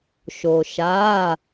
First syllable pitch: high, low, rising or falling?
low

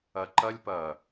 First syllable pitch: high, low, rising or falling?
low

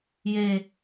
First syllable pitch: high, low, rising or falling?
low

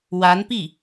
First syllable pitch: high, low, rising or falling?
rising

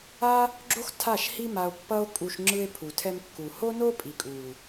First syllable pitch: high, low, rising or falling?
high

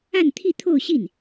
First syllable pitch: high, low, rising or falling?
falling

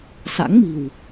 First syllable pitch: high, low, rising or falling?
rising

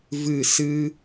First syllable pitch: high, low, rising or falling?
falling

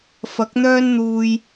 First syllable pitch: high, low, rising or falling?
rising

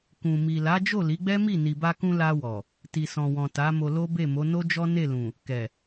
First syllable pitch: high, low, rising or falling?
low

